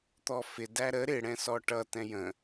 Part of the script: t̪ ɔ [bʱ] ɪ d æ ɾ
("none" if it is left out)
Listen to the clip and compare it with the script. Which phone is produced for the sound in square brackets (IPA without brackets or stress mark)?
f